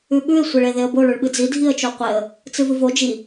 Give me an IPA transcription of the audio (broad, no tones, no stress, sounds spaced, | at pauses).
ʉ ɓ ʉ ɪ̯ sʷ e ɭ e ð e ə̯ b o ɭ ʉ ɭ ɓ ɨ d͡z i dʱ i ə̯ t͡ʃ o qʷ e ə̯ | t͡s ɨ v ɨ v o d͡ʒ i